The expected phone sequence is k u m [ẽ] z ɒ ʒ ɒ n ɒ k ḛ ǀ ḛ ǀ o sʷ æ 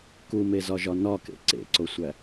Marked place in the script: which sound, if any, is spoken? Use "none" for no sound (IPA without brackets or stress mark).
e